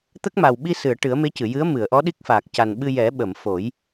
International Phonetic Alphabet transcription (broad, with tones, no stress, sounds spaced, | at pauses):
t̪ ə˦˥ k̚ m a˨˩ w ɓ i˧ s ɨ˨˩˨ ə̯ ʈ ɨ˨˩˦ ə̯ m e˧˥ c ɨ˨˩˨ j ɨ˧˥ ə̯ m ɨ˨˩˨ ə̯ ʔ ɔ˧˥ ɗ i˦˥ k̚ f aː˨˩ k̚ c a˨˩ n ɓ ɨ˧ j ɛ˨˩˦ ɓ ə˨˩˨ m f o˨˩˦ j